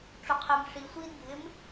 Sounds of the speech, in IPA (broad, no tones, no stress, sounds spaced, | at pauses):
ʈ͡ʂ ʊ qʰ e m ʂ i sʷ i d bʱ ɪ m